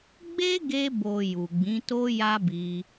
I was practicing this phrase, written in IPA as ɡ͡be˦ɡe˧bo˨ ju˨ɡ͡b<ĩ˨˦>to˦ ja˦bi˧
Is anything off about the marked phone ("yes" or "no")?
no